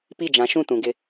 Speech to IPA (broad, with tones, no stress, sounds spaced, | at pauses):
p i˦˨ d͡ʒ ã˨˦ ʃ ũ˦˨ t ũ˨ ɡ ɪ˦